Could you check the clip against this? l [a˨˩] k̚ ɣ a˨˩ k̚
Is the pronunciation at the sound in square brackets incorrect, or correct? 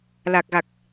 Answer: correct